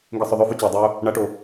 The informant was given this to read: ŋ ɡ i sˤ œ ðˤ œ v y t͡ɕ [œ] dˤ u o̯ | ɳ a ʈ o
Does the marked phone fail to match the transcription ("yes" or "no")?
yes